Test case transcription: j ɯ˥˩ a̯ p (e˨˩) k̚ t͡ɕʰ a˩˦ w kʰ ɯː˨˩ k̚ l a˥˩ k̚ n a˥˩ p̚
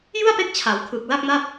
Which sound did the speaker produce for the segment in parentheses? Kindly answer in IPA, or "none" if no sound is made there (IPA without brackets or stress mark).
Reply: e˦˥